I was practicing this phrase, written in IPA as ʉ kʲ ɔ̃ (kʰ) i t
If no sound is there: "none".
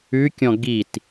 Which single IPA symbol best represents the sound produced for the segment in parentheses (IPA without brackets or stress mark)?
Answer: ɡ